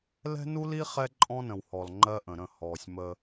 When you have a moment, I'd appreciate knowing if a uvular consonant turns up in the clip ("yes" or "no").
yes